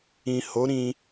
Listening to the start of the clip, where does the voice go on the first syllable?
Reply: low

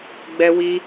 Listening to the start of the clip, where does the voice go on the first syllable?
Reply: high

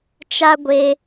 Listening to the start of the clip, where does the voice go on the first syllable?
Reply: high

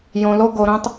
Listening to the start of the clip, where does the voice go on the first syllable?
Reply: low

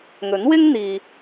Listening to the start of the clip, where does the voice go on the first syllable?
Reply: rising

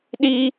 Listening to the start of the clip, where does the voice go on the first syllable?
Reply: high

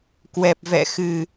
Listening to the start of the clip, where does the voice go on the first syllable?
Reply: low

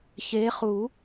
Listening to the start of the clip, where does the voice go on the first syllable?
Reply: rising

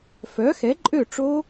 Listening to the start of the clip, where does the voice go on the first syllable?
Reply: rising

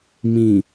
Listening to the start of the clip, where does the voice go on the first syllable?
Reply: low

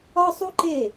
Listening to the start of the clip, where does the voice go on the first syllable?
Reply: high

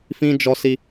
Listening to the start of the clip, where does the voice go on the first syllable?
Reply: high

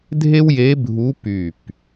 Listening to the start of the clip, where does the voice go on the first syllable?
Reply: high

